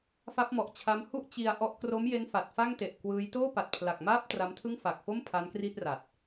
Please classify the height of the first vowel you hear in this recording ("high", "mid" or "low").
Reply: low